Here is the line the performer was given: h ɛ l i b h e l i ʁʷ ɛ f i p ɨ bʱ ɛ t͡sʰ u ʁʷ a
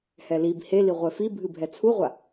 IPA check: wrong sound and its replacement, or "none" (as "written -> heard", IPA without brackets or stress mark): p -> bʱ